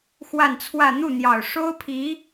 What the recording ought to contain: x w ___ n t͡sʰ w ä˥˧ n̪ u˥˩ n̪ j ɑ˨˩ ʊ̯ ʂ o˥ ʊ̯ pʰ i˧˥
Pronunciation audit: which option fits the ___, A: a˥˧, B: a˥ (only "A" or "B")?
A